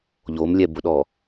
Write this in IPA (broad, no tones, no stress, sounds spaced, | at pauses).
ʎ o m lʲ ɛ b ʊ ɗ ɔ